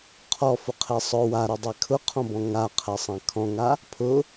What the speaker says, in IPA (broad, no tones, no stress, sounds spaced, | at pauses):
qʰ ɔ f ʊ qʰ e sˤ ʊ w a ɾ ʊ dˤ i kʰ ʊ qʰ ɔ̃ b ɔ̃ ŋ a qʰ ɛ sˤ ã kʰ ɔ̃ ŋ a | pʰ ʊ